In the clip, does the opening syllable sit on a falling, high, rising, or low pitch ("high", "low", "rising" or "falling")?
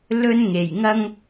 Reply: high